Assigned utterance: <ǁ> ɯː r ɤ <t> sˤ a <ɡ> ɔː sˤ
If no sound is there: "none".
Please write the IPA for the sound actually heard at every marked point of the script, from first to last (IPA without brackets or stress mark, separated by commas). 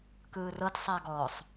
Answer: k, t, ɡ